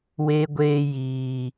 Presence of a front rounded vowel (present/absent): absent